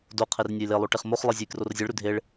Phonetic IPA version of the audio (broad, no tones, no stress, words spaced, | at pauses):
doqʰer nʲʊjlelˠo ʈeχmoχlˠi zʲejkrorzʲeɭɾʉ dʱeɭ